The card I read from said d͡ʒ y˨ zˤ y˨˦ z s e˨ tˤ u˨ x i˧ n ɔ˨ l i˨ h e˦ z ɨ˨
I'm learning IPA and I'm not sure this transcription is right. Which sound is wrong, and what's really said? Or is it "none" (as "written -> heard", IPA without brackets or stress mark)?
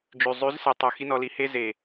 ɨ˨ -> e˨